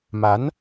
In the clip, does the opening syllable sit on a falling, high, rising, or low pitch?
rising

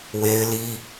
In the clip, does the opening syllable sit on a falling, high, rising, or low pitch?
high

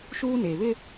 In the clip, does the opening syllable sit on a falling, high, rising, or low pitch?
high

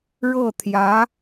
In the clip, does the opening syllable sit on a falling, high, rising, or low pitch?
falling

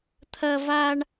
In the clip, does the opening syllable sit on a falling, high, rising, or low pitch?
high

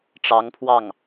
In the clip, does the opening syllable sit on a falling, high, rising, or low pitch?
rising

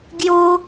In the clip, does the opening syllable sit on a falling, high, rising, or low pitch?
high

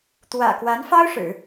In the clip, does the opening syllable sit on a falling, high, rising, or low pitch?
low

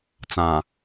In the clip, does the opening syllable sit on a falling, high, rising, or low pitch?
low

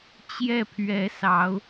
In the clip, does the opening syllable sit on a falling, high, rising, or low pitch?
falling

